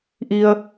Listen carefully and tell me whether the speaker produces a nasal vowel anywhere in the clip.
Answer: no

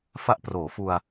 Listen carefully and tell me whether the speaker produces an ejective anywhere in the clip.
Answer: no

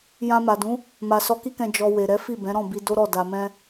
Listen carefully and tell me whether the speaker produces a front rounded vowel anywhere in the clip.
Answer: no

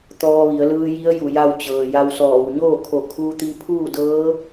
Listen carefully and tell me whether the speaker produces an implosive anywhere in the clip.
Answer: no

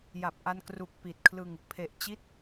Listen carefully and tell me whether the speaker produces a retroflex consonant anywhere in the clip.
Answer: no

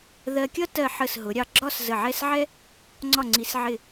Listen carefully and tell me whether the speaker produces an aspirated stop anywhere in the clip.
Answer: no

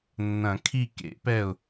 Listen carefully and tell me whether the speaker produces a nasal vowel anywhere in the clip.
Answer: yes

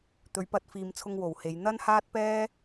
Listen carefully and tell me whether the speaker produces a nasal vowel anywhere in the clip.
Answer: no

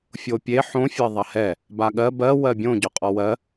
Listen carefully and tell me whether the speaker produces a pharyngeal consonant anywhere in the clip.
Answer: yes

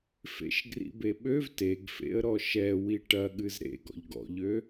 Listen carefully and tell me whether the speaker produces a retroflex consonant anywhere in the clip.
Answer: yes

